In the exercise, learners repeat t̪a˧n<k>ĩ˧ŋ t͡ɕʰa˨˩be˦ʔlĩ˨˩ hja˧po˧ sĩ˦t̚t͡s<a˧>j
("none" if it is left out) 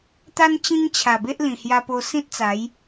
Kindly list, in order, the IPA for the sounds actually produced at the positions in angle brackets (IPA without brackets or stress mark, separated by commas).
t͡ɕ, a˨˦